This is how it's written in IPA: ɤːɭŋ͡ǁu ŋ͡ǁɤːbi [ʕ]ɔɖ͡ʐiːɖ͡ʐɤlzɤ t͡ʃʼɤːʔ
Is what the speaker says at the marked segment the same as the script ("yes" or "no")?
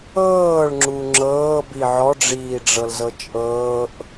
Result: yes